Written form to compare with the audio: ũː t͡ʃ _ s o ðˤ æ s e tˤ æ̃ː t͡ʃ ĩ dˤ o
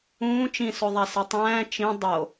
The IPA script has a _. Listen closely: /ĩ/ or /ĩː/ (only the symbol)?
ĩ